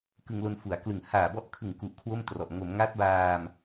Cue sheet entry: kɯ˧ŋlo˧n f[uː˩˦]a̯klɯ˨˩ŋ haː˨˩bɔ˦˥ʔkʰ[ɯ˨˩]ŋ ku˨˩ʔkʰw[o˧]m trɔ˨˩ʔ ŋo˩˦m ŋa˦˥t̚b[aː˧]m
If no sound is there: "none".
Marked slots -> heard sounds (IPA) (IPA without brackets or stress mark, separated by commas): u˩˦, ɯ˨˩, o˥˩, aː˧